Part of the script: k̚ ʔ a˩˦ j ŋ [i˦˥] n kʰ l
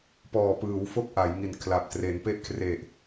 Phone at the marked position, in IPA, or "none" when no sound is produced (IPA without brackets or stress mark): i˨˩